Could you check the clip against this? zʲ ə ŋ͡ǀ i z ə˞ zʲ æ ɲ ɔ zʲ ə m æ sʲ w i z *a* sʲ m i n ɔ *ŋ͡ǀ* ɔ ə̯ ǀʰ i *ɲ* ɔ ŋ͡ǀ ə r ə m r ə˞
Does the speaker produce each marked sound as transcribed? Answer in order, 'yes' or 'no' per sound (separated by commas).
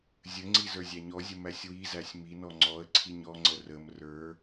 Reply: no, yes, yes